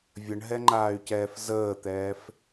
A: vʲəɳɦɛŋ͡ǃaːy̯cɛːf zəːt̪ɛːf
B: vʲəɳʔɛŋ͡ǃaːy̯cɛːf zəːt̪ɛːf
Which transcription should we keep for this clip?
A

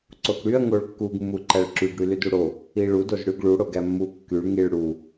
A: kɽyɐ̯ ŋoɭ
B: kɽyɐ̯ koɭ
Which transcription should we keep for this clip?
A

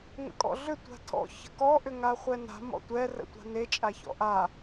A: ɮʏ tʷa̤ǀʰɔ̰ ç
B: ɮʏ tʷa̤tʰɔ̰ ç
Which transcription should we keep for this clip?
B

